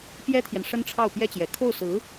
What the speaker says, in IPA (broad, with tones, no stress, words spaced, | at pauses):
pjɛ˥t̪ʰjɛ˨n ʂə˥nʈ͡ʂʰɑ˥˩ʊ̯ pjɛ˥t͡ɕjɛ˨˩ kʰo˥˩ʊ̯sɹ̩˧˥